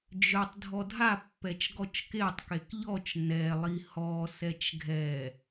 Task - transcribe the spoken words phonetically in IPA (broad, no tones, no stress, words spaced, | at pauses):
d͡ʒœtˤ dʱɔdʱa pːɛt͡ʃɡɔt͡ʃketˤ kekʎɔt͡ʃ nɛlˠi hɔ sɛt͡ʃɡʱɛ